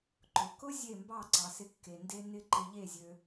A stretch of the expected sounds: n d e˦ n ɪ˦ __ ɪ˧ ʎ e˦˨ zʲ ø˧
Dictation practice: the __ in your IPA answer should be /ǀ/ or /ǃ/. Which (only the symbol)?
ǃ